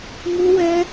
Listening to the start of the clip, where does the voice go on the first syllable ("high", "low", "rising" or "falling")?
high